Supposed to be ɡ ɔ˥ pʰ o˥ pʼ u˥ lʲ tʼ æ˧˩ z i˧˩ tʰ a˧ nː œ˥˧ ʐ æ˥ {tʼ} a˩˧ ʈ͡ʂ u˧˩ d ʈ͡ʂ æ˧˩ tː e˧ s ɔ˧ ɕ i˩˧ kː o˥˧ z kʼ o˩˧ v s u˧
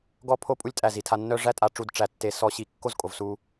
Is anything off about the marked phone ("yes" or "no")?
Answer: no